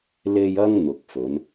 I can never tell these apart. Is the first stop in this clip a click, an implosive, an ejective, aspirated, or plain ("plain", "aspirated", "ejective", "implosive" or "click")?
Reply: plain